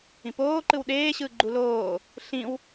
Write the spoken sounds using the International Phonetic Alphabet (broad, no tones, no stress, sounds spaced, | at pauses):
ĩ p oː ǃ ɯ w ɗ eː ɕ ɯː ɡ͡ǃ u l oː | ɬ ĩ w